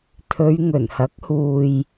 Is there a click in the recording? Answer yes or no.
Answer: no